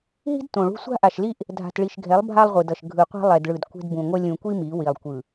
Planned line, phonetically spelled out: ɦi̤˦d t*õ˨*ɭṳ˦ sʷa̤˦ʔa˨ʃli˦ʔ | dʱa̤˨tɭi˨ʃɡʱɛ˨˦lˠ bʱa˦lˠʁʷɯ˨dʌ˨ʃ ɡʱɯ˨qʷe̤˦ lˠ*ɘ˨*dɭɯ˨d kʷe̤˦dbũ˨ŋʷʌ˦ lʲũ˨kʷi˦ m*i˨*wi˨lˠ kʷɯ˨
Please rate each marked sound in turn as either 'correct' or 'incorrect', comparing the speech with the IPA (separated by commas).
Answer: correct, incorrect, incorrect